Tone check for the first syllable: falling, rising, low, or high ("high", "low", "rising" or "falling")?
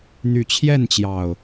low